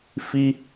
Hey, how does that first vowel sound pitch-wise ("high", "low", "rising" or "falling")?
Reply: high